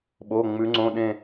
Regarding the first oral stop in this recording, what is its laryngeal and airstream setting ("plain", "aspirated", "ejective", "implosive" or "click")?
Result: implosive